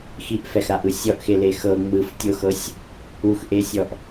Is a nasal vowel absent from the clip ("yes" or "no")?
yes